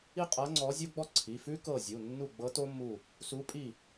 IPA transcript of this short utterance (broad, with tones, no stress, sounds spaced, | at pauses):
i˥ qʼ ɤ˧˥ ŋ͡ǀ ɔ˧˥ zʲ o˥ ɡ͡b ɔ˥ ǀʰ i˩˧˩ f ʉ˥ k ɤ˦˨ zʲ u˩˧˩ nː u˦˨ ɡ͡b ɤ˧˥ t o˥ mː u˦˨ | s u˧˥ pʼ i˦˨